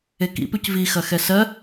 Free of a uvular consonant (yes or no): yes